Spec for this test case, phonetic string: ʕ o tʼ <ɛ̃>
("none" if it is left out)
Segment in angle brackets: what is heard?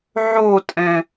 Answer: ɛ̃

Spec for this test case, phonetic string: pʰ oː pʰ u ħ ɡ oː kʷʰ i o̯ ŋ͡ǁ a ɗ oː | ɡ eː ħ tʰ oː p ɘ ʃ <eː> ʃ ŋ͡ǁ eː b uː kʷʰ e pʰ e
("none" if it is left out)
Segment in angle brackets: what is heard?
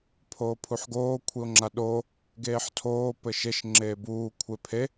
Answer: e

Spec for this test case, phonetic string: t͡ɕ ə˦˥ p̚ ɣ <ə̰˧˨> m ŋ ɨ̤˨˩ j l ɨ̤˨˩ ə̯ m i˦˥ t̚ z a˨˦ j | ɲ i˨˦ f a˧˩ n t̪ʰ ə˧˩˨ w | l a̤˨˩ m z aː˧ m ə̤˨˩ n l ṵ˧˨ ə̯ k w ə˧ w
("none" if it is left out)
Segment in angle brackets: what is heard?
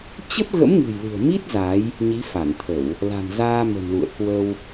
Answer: ə̰˧˥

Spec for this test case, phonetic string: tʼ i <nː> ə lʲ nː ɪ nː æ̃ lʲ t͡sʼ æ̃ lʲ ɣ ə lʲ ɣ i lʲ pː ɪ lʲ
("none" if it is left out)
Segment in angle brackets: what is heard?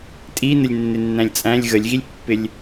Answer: n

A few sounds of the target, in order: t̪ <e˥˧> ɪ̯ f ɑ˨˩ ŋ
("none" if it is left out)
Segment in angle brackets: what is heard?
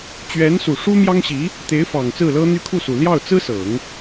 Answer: e˧˥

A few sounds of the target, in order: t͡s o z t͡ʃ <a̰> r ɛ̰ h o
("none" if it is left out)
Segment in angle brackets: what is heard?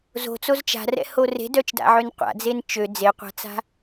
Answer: a̤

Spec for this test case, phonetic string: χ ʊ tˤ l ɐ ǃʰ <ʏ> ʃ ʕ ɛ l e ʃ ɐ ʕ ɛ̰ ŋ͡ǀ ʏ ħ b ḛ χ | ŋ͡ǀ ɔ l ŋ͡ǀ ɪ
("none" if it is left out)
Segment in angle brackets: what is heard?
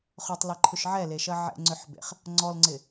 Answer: ʏ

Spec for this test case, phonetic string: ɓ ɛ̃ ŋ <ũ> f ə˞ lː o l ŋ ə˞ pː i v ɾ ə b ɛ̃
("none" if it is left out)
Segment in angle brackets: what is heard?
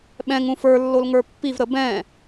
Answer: ũ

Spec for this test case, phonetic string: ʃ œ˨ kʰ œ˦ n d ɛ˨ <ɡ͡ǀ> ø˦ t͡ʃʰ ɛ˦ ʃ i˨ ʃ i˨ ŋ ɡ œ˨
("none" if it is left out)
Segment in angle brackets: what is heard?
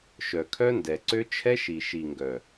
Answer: ǀ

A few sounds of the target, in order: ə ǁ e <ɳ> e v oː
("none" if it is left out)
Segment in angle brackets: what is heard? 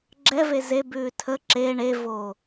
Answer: ɳ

